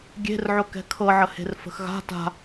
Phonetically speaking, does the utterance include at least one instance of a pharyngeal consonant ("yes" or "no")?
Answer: yes